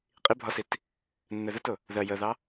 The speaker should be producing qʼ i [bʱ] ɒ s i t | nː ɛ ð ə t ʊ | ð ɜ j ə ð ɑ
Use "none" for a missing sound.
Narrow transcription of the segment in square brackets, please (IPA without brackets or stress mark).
bʱ